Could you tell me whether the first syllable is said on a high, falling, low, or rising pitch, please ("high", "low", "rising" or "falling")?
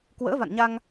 rising